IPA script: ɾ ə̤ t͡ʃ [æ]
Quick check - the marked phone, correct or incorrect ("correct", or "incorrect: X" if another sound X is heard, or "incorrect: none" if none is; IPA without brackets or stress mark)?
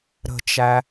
correct